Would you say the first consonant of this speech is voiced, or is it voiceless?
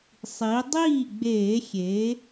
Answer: voiceless